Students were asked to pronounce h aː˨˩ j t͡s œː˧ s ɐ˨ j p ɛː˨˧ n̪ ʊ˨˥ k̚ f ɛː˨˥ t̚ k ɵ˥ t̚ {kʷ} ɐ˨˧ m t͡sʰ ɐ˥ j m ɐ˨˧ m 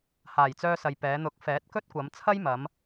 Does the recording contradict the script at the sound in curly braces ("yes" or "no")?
no